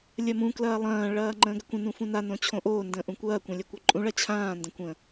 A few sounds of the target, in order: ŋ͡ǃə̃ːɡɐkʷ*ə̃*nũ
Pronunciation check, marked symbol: correct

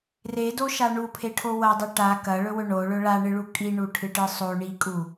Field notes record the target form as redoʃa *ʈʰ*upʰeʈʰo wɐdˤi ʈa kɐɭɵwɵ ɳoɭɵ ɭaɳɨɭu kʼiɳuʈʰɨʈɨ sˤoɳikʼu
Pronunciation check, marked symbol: incorrect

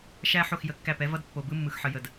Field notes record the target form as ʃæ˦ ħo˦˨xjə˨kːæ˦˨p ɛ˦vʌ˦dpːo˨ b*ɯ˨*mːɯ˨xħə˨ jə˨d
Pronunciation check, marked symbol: incorrect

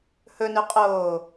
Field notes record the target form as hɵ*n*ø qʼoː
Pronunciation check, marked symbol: correct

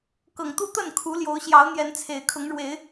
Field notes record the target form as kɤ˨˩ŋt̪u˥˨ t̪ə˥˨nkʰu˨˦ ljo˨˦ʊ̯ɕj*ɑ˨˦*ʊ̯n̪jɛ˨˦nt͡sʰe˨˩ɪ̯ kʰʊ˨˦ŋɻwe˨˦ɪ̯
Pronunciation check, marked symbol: correct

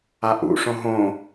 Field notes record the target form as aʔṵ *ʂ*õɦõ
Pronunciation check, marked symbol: correct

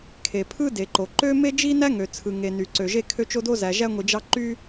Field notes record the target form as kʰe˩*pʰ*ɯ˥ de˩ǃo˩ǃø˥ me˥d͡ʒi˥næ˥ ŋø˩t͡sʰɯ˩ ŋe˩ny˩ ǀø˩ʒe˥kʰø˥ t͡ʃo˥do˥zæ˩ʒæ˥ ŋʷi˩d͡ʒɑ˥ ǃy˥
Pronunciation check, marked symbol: correct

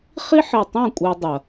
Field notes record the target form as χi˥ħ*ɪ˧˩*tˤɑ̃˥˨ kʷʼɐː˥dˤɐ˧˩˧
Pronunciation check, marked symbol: correct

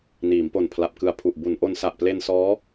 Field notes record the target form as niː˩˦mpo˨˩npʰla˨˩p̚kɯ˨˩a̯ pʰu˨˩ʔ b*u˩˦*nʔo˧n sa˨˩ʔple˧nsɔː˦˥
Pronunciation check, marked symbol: correct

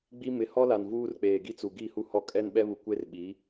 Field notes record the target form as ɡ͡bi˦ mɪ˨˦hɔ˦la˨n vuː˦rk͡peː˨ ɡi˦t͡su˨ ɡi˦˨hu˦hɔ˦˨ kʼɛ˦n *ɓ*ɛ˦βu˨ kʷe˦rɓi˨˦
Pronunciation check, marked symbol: correct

